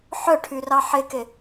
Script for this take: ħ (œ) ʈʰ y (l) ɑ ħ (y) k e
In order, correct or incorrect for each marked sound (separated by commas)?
correct, incorrect, incorrect